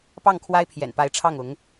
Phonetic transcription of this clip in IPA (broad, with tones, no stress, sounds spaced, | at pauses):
p ɑ˥˩ ŋ kʰ w a˥ ɪ̯ pʰ j ɛ̰˨˩ n p a˧˥ ɪ̯ ʈ͡ʂʰ ɑ˥˩ ŋ ʊ˧˥ ŋ